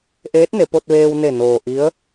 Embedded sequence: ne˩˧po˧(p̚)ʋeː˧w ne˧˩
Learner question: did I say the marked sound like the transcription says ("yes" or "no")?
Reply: no